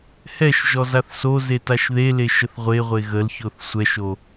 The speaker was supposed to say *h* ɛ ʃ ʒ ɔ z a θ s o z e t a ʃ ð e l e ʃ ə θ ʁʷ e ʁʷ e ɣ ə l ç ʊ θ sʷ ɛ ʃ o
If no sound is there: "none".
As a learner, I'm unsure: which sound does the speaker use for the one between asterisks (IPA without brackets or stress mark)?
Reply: h